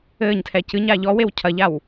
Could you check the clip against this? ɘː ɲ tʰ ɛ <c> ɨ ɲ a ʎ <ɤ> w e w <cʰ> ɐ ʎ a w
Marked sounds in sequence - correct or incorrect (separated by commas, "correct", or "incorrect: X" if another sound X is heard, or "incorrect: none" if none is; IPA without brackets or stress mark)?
correct, incorrect: ɔ, correct